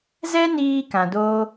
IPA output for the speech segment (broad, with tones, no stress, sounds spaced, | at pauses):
z ɛ˦ n iː˧ k ã˨ d oː˦